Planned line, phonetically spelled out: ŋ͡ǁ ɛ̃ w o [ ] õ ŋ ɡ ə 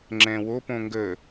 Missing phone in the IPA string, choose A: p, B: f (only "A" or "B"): A